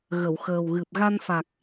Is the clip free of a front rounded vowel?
yes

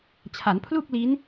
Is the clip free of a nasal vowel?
yes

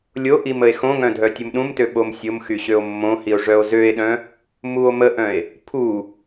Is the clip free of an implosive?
no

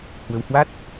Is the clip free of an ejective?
yes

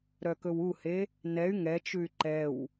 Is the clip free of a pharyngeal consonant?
yes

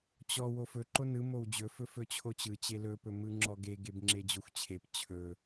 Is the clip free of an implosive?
yes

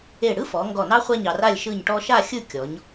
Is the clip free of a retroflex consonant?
no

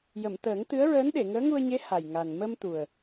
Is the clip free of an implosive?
no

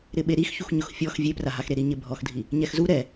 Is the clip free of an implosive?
no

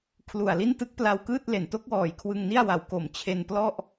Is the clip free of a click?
yes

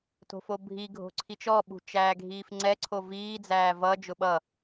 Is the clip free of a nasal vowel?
yes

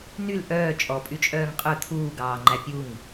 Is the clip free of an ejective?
no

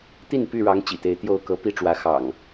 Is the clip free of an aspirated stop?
yes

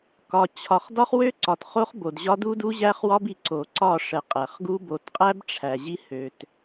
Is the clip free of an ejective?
no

